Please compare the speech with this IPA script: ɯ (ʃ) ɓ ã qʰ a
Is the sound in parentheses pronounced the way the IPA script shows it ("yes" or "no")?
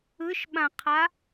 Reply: yes